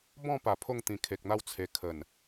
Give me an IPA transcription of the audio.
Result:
b ɔ̃˥˧ p a˨˩ pʰ o˥˧ ŋ t̪ ĩ˨˩ kʰ e˨ k̚ n̪ a˥˧ w t͡sʰ e˧ kʰ ə˨˩ n

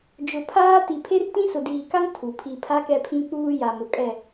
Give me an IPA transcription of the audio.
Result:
d͡ʒ ʊ˨ pʰ aː˦ t i˨ pʰ e˦ r t ĩ˦ s ʊ˨ d iː˨ k a˦ ŋ tʰ u˨ pʰ i˨ pʰ a˦ k ɛ˦ pʰ ĩ˦ k͡p uː˦ j a˨ m ʊ˨ kʼ ɛ˦˨

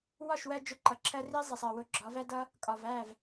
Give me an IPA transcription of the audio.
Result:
w ɒ˦˨ ʃ w ɜ˧ d͡ʒ ʊ˧ ǃ ʌ˨ ǁʰ ɜ˧ r i˦ zˤ i˨ sˤ ɜ˨ w ʊ˧ ɡ͡ǁ ɒ˨˦ v æ˦ d ʌ˦ | kʼ ɒ˨ v æ˦˨ v

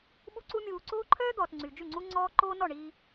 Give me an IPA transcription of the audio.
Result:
ɓ u˦ ǀ u˦ mʲ uː˧ ǀ oː˦ ǃʰ œː˦ d̪ ɔː˨ t ŋ͡ǀ y˨ d͡ʒ y˦˨ ŋ͡ǀ u˦ ŋ͡ǀ ɔː˦ ǃ oː˦ n ɔ˦˨ ɳ iː˧

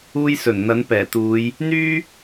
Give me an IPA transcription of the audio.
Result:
uː˧ j s ɵ˨˩ n n̪ ɐ˨˥ n p ɛː˨˩ t̪ uː˨˧ j | n̪ yː˥

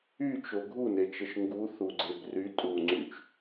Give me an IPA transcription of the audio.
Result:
y t͡ʃ o ɡʱ u n e t͡ʃ ə ʃ ŋ ɡ u θ u ɡ͡ǀ e b r y tʼ u ŋ͡ǀ y t͡ʃ

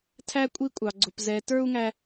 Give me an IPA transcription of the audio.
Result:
tʰ æ˥ kʷʼ i˥ kʷʼ ɑ˧ ɡ͡ǀ ʊ˧ p z ɛ˧ t ə˞˥ u̯ ŋ æ˥

